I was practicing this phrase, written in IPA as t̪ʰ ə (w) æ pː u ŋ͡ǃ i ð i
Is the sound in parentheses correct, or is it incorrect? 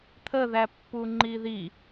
incorrect